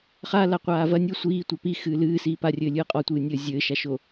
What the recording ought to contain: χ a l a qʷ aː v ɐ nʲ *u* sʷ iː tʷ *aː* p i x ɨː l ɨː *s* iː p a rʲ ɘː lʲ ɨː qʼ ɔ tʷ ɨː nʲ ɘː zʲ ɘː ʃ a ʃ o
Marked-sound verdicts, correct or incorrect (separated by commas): correct, incorrect, correct